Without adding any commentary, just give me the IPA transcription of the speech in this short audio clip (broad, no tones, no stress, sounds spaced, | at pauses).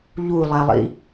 ʎ u lˠ ɛ lˠ ḭ